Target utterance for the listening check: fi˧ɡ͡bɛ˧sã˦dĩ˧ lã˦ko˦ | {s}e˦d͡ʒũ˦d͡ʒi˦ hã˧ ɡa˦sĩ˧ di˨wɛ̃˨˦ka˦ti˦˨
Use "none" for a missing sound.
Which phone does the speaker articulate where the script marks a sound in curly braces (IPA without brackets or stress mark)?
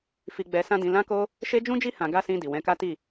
ʃ